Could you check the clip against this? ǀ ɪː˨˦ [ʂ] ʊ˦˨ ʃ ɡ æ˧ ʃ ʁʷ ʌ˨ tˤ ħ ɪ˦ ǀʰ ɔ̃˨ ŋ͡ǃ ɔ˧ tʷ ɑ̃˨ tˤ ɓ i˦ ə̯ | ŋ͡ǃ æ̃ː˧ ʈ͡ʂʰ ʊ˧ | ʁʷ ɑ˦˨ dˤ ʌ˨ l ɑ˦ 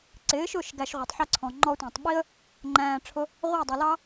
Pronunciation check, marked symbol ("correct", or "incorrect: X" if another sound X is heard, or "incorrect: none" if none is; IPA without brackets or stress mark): incorrect: ʃ